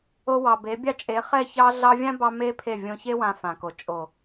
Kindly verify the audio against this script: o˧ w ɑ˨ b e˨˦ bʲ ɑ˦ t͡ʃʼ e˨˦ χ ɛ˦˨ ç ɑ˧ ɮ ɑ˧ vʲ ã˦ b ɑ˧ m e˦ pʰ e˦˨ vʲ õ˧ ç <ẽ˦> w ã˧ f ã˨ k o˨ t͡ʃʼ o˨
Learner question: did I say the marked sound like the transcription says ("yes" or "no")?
no